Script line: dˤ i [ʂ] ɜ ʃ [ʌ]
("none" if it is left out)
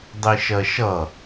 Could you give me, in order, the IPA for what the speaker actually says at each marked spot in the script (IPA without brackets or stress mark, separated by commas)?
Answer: ʃ, ʌ